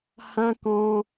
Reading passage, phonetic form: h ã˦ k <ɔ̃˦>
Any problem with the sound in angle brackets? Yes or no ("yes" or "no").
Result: no